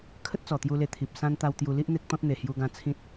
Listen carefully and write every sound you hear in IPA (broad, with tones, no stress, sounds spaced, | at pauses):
kʰ ə˦ t̚ t͡s ɔ˨˩ t̪ j u˧ l e˧ t̪ʰ i˨ p̚ s ã˦ n t̪ a˧ w t̪ j u˧ l i˦ ʔ n̪ e˦ k̚ t̪ ɔ̃˦ t̚ n̪ e˨˩ h j u˧ ɡ ã˧ t͡sʰ ĩ˦ t̚